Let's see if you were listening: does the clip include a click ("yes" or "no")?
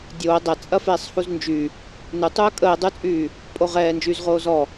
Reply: no